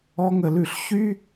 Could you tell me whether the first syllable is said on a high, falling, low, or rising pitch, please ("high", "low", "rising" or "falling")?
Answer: high